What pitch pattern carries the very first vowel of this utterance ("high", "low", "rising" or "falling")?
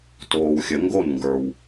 low